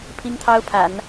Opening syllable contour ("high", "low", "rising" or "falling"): high